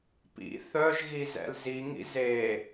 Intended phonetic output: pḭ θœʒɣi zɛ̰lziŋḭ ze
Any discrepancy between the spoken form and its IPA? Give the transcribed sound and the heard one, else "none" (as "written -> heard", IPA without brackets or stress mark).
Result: none